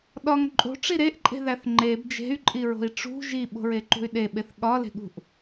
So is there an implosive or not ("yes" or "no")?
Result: yes